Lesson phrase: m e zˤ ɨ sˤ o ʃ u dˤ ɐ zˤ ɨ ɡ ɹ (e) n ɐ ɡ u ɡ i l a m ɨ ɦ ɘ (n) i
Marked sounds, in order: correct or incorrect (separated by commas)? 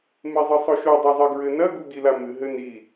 incorrect, correct